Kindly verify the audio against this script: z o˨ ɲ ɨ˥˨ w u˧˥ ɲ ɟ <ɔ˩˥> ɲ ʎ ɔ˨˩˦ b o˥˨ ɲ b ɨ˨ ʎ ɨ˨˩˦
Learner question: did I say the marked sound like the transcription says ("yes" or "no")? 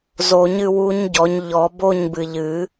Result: yes